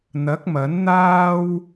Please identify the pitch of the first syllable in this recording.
rising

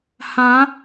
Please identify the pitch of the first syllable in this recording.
rising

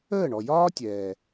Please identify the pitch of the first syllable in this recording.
falling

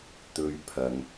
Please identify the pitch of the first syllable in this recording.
high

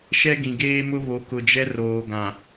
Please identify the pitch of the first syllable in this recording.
high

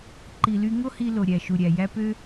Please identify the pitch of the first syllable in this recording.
low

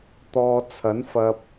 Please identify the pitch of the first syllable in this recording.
low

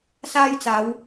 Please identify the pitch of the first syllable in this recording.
high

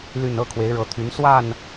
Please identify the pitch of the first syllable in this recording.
falling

